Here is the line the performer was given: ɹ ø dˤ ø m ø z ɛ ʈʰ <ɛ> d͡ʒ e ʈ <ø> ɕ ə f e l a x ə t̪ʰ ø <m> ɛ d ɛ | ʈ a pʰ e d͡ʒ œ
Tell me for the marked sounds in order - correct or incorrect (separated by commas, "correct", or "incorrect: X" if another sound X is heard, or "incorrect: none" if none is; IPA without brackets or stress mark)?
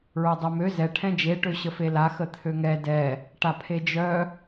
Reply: incorrect: ɛ̃, correct, incorrect: ŋ